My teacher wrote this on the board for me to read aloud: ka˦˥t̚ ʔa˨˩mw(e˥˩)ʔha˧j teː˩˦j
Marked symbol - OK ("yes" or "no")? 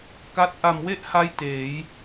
yes